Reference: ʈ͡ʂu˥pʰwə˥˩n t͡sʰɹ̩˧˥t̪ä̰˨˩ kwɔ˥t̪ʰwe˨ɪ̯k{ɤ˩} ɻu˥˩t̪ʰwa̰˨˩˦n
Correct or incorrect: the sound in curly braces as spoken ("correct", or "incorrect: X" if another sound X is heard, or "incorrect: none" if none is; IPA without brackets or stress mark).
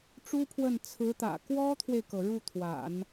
correct